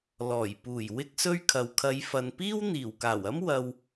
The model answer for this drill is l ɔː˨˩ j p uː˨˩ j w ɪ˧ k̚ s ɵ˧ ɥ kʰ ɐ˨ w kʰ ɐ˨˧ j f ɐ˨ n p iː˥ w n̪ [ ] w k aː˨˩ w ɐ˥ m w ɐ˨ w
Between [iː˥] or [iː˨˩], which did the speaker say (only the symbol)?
iː˨˩